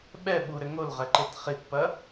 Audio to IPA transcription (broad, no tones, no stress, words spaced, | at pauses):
ɓɛ ɓuɾɘ ŋolʁɛǃet χitpɐ